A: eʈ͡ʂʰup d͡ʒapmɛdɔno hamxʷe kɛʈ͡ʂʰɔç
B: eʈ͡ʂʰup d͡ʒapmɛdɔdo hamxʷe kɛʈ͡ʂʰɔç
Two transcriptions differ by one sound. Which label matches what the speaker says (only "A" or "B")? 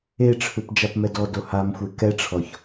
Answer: B